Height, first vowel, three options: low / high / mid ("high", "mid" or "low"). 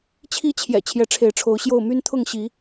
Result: high